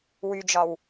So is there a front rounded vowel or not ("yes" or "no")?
yes